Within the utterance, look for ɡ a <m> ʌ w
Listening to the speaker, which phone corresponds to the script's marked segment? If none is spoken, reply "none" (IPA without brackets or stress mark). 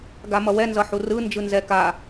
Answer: m